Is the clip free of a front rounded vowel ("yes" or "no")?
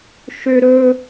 no